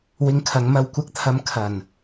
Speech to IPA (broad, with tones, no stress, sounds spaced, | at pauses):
w ɪ˧ ŋ kʰ ɐ˨˧ ŋ m ɐ˧ w kʷ ɐ˥ k̚ t̪ʰ ɐ˧ m kʰ ɐ˨˩ n